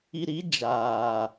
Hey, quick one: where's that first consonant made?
tongue tip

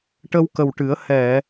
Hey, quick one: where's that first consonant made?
retroflex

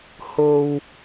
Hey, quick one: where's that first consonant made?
throat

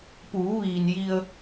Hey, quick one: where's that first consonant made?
lips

